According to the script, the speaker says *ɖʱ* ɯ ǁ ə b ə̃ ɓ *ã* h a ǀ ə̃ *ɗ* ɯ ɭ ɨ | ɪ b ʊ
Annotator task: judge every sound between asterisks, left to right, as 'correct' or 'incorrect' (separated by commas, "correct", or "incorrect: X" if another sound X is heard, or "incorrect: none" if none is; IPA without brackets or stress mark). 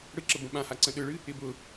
incorrect: ɽ, correct, correct